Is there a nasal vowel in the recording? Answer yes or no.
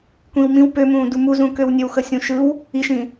yes